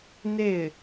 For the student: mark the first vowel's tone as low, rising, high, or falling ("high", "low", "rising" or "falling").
falling